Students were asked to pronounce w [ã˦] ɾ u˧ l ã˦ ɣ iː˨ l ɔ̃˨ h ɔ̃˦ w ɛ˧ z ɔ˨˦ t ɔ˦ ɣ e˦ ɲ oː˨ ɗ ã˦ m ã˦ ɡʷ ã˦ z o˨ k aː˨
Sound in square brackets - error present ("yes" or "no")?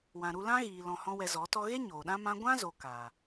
yes